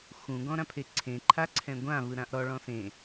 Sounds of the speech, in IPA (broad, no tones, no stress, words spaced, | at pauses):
xũ ɡɔ̃ɾãpʰeǀʰẽ ǃʰaǀʰɛ̃ɡʷã vɯɾãʔɾɔ ɭɔ̃sẽ